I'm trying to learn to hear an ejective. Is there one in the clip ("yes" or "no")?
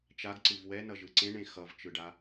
no